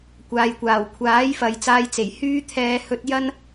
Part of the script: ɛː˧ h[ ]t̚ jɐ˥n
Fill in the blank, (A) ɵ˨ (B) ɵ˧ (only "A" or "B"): B